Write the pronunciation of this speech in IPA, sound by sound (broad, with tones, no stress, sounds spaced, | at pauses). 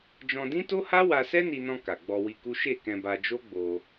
d͡ʒ ɔ̃˧ d ĩ˦ t o˦ h a˦ w a˧ s ɛ˦ n i˧ n ɔ̃˧ k a˨ ɡ͡b ɔ˧ w i˧ k u˦ ʃ e˦˨ k ɛ̃˧ b a˧ d͡ʒ o˦ ɡ͡b o˧